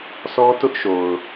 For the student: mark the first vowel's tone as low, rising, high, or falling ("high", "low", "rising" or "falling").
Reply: high